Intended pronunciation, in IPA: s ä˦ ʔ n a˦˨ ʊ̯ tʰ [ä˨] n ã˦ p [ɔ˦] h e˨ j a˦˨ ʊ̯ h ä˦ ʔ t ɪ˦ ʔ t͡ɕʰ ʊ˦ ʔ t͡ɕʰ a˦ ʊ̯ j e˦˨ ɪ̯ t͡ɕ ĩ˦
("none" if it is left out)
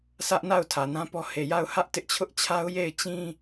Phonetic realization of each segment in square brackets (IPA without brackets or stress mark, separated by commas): ä˨, ɔ˦